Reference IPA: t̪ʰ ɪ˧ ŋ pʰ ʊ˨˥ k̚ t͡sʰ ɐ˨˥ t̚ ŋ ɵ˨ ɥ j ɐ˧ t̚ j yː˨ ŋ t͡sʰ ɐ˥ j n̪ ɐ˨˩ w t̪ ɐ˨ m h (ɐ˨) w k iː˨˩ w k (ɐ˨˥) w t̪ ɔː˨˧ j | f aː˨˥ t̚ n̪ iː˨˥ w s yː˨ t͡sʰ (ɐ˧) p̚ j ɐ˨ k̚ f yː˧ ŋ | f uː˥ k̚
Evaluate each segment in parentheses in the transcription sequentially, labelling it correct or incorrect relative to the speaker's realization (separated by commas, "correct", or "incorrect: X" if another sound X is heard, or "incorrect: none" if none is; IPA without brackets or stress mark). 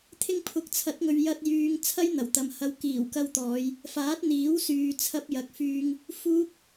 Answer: correct, incorrect: ɐ˧, correct